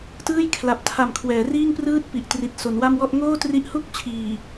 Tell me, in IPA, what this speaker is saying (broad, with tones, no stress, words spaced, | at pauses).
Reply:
tɯː˥˩jkʰla˨˩p̚tʰa˨˩m kʰwɛː˩˦riː˥˩ŋprɯː˥˩t̚ pi˨˩ʔtri˨˩t̚so˩˦nwa˥˩m wɔ˥˩ʔ ŋoː˥˩tri˦˥ʔhu˥˩k̚ t͡ɕʰiː˨˩